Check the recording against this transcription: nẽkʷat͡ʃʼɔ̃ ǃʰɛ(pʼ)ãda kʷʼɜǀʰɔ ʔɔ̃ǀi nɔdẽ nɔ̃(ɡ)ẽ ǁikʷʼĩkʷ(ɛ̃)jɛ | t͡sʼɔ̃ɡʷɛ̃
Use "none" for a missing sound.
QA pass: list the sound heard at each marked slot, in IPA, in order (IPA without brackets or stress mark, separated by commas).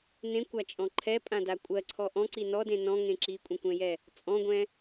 pʼ, ŋ, ɛ̃